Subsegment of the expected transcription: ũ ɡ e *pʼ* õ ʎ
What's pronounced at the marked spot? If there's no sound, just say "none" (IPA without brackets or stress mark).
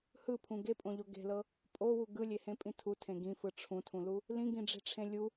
pʼ